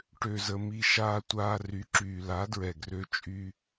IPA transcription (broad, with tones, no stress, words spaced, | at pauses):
ʈø˨zə˨ mi˨ ʃaː˨tʷaː˨ ry˨˦ǁyː˨la˨˦dɹɛ˨ ɡrø˦ t͡ʃʼy˦